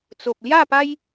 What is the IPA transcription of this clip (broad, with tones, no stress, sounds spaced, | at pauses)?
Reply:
t͡s o˨ p̚ l j a˥˧ p a˦ j